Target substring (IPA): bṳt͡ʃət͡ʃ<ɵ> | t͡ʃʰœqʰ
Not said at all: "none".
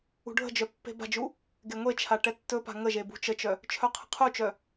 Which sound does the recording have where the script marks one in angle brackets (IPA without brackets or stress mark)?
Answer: œ